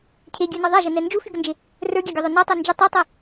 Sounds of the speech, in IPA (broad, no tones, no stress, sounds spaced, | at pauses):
cʰ e ɡʲ ə˞ n ɒ ðˤ a ʒ ɘ n ɛ n d͡ʒ u f y ɡ ə n d͡ʒ e | r ə˞ ɡʲ a ɡʲ ɒ ðˤ o n ɒ tˤ ə˞ n d͡ʒ ə tˤ ɛ tˤ ɛ